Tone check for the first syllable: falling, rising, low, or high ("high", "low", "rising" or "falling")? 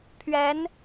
rising